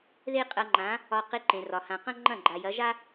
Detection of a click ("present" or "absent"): present